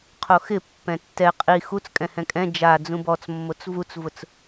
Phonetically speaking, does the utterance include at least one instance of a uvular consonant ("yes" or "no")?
yes